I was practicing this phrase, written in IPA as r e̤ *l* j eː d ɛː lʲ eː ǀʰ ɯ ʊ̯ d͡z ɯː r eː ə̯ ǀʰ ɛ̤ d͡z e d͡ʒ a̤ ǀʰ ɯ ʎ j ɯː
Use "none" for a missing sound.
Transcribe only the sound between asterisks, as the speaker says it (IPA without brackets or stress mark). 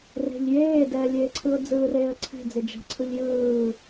ʎ